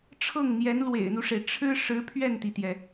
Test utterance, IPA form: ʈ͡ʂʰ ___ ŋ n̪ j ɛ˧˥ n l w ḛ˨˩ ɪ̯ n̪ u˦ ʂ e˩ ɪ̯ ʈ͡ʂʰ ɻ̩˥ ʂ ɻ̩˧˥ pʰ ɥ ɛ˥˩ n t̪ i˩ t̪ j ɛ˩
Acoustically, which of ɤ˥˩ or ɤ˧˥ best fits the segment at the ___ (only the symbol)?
ɤ˥˩